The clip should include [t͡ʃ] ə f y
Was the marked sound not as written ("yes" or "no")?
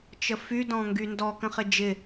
no